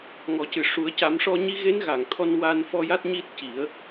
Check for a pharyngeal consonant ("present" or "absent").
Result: absent